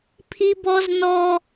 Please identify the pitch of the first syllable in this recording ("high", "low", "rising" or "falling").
high